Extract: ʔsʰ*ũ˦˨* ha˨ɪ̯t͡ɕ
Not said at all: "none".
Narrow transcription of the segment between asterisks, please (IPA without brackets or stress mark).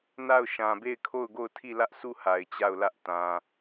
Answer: u˦˨